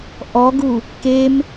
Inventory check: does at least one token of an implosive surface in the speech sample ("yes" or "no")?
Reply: no